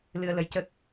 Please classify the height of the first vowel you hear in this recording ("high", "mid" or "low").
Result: high